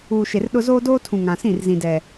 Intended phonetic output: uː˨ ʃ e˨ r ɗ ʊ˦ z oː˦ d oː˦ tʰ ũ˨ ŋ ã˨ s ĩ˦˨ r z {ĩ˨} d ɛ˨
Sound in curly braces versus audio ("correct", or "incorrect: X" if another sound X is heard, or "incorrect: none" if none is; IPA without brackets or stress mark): correct